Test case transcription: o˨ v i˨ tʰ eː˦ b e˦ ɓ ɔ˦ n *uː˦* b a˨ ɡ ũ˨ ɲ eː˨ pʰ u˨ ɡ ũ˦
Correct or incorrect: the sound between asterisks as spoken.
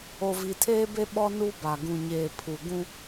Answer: incorrect: u˦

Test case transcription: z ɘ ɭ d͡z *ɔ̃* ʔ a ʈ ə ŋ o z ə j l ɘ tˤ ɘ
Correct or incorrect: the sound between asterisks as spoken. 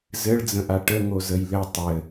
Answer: incorrect: ə̃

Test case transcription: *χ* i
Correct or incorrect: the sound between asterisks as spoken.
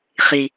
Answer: correct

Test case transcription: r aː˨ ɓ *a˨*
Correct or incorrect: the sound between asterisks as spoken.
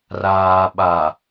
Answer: correct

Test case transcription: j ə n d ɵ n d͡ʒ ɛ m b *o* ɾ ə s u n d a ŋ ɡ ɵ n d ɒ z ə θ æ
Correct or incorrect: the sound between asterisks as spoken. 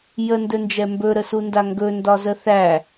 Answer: incorrect: ɵ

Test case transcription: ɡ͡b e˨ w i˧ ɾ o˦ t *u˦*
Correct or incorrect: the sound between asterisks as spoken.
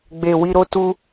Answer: correct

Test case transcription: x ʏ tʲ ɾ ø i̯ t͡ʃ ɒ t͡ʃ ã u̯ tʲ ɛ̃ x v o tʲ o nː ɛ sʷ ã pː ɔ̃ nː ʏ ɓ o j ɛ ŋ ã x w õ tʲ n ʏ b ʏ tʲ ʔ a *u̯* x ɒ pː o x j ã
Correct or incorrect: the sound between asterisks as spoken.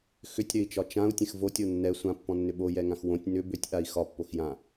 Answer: incorrect: i̯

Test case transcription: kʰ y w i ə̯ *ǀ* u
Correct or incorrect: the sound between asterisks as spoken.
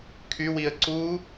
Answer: correct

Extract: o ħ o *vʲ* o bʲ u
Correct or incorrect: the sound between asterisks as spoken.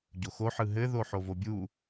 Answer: incorrect: v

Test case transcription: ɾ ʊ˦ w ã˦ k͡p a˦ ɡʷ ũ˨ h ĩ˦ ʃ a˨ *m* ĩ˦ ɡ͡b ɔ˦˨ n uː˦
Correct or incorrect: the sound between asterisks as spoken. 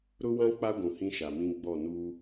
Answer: correct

